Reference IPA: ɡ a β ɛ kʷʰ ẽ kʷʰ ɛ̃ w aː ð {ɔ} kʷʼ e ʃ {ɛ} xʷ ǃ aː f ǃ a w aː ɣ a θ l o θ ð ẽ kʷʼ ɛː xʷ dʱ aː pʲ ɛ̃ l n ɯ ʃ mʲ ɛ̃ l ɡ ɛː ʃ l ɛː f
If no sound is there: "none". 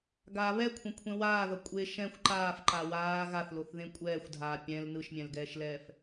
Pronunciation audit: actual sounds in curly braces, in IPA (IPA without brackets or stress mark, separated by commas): ʌ, ɛ̃